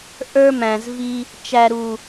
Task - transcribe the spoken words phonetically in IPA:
ʔə˞˦mæ̃˨zvi˦ | t͡ʃæ˨ɾu˨

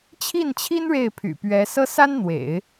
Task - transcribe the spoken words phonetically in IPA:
t͡ɕʰi˥˩nt͡ɕʰi˥n ɻe˥˩ɪ̯pʰy̰˨˩pɥɛ˧˥ sɤ˥sa˥nn̪wḛ˨˩˦ɪ̯

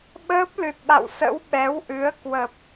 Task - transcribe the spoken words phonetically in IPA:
ɓəː˦˥p̚lɨ˨˩t̚ɓa̰˧˨wsə̰˧˥w ɓɛ˨˦wʔɨ˨˦ə̯kwə˨˩p̚

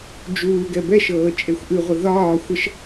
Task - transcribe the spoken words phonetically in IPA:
d͡ʒuːɡɛ bɛʃɤː t͡ʃʼexʷʔɨʁʷə ðɒː xʷəʃ

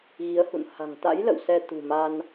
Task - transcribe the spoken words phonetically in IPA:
ɣi˨˦ə̯hṵ˧˨n ha̤˨˩ŋt̪a̰˧˥j lə̰˧˨wsɛ˧ t̪ṳ˨˩ma˧n

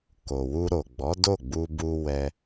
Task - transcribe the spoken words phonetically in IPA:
ko˨wu˧ɾo˨ ɡ͡bɔ˨˦do˦˨ɡ͡bu˧bu˧ wɛ˧

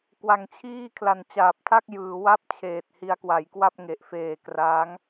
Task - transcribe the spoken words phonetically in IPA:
kwa˧ŋt͡ɕʰiː˥˩ kʰla˨˩nt͡ɕaː˨˩p̚tʰa˥˩k̚ jɯː˩˦wa˦˥p̚ t͡ɕʰeː˨˩t̚hi˦˥a̯kwa˩˦jkwa˥˩p̚ ŋe˨˩ʔfeː˨˩kraː˦˥ŋ

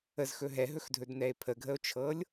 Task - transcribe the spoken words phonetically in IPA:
əzxɵ ɦɛɦɵxdʱɵdnɛe̯ pʰəɡʱəo̯t͡ʃʰɤlʲ

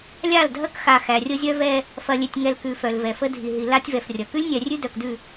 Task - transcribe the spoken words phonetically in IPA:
lʲa˦˨ldʱɐ˦kxa˨ xæ˨rʲə˦zʲœ˦vɛ˦ | fɐ˨lʲe˨tʲŋɛ˨l kʉ˨ fœ˨lvɛ˨fə˦ dʱi˨ɦi˨ la˦tʲvɛ˨frʲɐ˨ kʉ˦lʲnʲɛ˨rʲʉ˦ dœ˨kdʉ˦˨

